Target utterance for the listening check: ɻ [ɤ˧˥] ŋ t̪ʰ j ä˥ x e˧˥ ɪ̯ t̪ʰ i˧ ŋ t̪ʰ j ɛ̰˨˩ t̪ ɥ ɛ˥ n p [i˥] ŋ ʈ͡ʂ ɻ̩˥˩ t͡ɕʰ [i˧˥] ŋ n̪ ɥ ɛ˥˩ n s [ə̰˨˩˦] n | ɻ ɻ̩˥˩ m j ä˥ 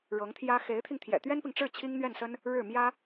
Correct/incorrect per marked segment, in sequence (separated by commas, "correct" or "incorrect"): correct, incorrect, incorrect, incorrect